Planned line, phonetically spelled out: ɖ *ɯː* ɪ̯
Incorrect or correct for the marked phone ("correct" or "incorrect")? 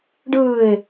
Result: correct